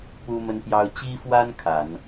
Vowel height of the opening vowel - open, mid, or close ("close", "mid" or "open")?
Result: close